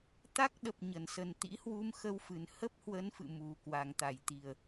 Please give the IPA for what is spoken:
t̪a˦˥k̚ɗə˨˩p̚ ɲə˧˩nsə˨˩n t̪ḭ˧˥hwu˧m xə˧wfɨ˨˩n hə˦˥p̚hwə˨˦n fɨ̰˧˨mu˨˩ kwa˨˩ŋt̪a˧˩jt̪i˨˩ə̯

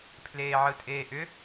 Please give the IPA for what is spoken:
pʰleːʕɯtʼeːʔʏ

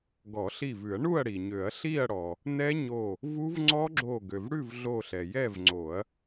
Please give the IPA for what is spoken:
ɡɔ˨˩˦ɬi˧˩vʉ˨˩˦ɐ̯ ɳu˥˨ɐ̯ɽi˩ɲø˨˩˦ɐ̯ ɬi˥˨ɐ̯ɽɔ˩ | nɛ˦˥ɲo˧˩ | vu˦˥vŋ͡ǀɔ˦˥ɡ͡ǁo˧˩ ɡø˩vɽʉ˥˨vɮo˧˩ ɬɛ˩jɛ˥˨vŋ͡ǀo˨˩˦ɐ̯

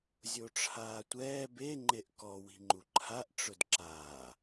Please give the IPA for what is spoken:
zʲoʈ͡ʂʰaːtʷɛː be ŋ͡ǃeʔkɔ wi̤ŋ͡ǃuǃʰaʔ ʈ͡ʂʊdǁaː

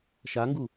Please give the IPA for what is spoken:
ʃaŋɡu

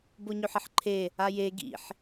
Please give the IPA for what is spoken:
boɲɵħɐħǃʰe | aje ɡḭħ

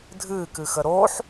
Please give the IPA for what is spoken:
dʱɨːkɨxə ɾoːħ

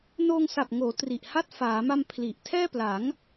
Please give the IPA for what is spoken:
noː˧ŋsa˨˩p̚ŋoː˩˦ tri˨˩ʔha˥˩t̚ faː˩˦ma˧m pʰli˨˩ʔ tʰɛː˥˩pla˩˦ŋ

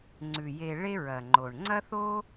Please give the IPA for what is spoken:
ŋ͡ǀʉ˨ je˧ ɭe˦ɹɐ˨ŋ͡ǃo˨ɳ ŋ͡ǀɐ˦θo˦

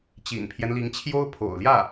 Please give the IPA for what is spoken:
t͡ɕḭ˨˩npʰjɛ˦nli˧˥ŋt͡ɕʰjo˥ʊ̯ pʰo̰˨˩ʊ̯ljä˥˩

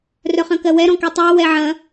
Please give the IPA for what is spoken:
rœχɐ̃kɜwɛ ɾɔ̃kytˤɜ wɛʕɐ̃

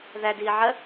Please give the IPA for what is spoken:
ðæ diːʕɜ

